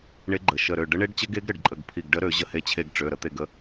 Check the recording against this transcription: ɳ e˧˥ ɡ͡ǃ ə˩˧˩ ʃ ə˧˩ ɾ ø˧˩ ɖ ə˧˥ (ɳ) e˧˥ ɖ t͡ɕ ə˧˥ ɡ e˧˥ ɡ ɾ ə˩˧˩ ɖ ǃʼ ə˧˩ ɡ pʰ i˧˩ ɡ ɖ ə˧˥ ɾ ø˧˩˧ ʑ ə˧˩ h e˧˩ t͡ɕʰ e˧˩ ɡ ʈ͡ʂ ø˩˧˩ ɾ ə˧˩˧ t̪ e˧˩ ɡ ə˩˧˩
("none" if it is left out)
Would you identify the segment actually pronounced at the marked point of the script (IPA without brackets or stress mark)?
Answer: ɳ